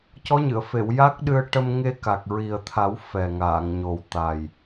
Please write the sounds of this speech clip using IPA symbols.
c ɔ˧˥ ɲ ɨ˨˩˨ ə̯ f e˨˩˨ w j a˦˥ k̚ ɗ ɨ˧ ə̯ ʈ ə˧ m ŋ e˧ k a˨˩ k̚ ɹ i˨˩ ə̯ t̪ʰ a˨˩˦ w f ɛ˨˩ ŋ aː˨˩˨ ŋ ɲ o˨˩ w t̪ a˨˩ j

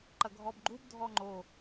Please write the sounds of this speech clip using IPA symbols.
ǃ ɐ ɡʱ ɔ b ɡ͡ǃ u b dʱ ɔ ŋ͡ǃ o

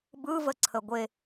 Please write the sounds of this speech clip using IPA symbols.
b ɯ v ə ǀʰ ə ɡʷ e

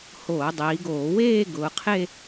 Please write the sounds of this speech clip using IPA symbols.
h oː˧˩˧ dˤ iː˩˧ ɡ oː˧˩˧ w eː˥˧ ɡ ʊː˩˧ qʰ e˥˧

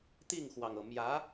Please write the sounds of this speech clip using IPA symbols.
t̪ i˥˩ ŋ x w ɑ˩ ŋ ɤ˩ m j ä˧˥

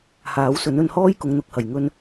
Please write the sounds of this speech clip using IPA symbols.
h aː˨˥ w s ɵ˨˥ n ɵ˧ n h ɔː˥ j k ʊ˨˧ ŋ n̪ ʊ˨˥ k̚ h ɐ˨˩ j ŋ ɵ˧ n

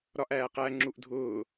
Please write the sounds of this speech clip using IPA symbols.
ɾ ɒ ʔ æː q æ ŋ͡ǁ u ʔ dʱ ʊː

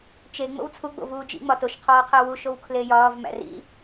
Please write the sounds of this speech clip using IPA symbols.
t͡ʃ e ŋ͡m o̰ w t͡sʰ u ɡ͡b o̰ v uː d͡ʒ ḭ ŋ͡m ɒ t o ʃ qʰ ɒː qʰ æ w u ʃ o w kʰ l e j ɒː v m æ̰ r ḭ

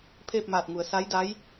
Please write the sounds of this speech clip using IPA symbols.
pʰ eː˥˨ p̚ m aː˧˩ t̚ ŋ u˩ ə̯ s a˧˥ j d a˧˥ j

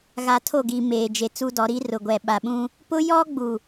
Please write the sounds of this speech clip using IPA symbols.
ɣ a˨ tʰ o˦˨ ɡ i˨ m eː˨ d͡ʒ e˨ t͡s u˦ d ɔ˨˦ ɾ i˦ r ʊ˨ ɡʷ ɛ˨ ɓ a˨ ɓ ũ˦ | p ʊ˦ j ɔ˦ ɡ͡b u˨

